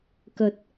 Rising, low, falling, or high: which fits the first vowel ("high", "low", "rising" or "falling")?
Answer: rising